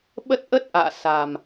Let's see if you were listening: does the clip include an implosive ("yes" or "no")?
yes